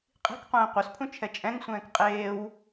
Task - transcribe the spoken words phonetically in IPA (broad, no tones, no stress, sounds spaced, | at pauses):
qʼ i̤ k qʷ ɛ̃ː qʷ œ s pʰ ũ t͡ʃʰ ɛ t͡ʃʼ ɛ̃ ŋ sʷ ɛ̃ː k qʼ eː w